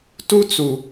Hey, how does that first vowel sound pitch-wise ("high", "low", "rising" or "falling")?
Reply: high